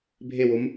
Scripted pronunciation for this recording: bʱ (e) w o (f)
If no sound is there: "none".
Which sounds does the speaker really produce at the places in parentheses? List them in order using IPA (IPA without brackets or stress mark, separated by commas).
e, m